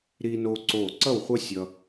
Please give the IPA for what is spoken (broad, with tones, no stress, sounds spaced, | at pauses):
ɾ iː˦ n oː˦ ǀ oː˥˩ ǀ ʌ˥˩ w χʷ ʌ˦ sʲ ʌ˦